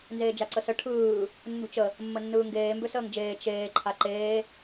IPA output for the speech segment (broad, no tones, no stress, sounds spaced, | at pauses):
n z eː d͡ʒ a ǀ ə s ə ʈʰ ɯː | nː ṳ t͡ʃ ə | mː ə nː ɯː ŋ ɡ eː m b ø s əː ŋ d͡ʒ eː t͡ʃ eː ǃʰ a ǃ eː